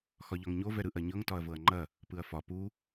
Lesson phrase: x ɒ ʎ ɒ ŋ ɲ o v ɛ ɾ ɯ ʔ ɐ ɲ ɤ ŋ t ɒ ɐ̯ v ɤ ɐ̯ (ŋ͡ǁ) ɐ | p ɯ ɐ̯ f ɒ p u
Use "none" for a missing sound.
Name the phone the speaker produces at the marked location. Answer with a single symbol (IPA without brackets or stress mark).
ŋ͡ǃ